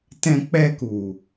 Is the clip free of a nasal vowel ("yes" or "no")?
no